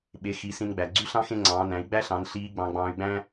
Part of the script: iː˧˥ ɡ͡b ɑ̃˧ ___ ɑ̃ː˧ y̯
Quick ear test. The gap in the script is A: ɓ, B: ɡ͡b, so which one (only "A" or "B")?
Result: B